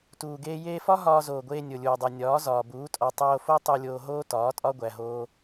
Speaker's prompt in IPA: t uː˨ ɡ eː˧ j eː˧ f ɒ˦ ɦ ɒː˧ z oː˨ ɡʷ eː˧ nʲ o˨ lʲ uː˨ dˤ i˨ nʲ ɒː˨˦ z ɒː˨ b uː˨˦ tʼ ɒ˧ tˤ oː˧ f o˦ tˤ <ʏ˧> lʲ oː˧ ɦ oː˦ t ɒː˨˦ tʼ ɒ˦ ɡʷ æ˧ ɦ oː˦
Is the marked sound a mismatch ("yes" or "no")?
yes